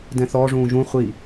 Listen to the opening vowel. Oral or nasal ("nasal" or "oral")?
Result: nasal